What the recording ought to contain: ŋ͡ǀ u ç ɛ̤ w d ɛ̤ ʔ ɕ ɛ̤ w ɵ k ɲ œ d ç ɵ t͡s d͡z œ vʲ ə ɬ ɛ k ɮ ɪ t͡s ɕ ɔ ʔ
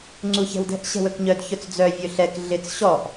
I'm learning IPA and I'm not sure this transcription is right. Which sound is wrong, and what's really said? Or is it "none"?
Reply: ə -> ɵ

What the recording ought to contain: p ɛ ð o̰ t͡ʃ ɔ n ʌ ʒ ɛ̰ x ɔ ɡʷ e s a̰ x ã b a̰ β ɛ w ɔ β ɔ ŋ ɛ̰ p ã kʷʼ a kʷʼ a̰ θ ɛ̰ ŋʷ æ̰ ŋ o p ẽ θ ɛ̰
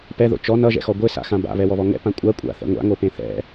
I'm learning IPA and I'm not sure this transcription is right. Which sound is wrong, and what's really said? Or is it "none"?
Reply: æ̰ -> a̰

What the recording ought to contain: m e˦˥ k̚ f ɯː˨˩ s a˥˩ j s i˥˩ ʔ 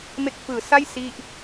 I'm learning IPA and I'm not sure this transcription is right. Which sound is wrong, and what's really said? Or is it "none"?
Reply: none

